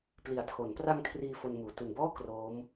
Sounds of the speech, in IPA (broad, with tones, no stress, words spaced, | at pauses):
pli˩˦a̯tʰo˩˦npra˧ŋ kʰriː˧ fo˧nmuː˩˦ tu˨˩nbɔː˥˩ kroː˦˥m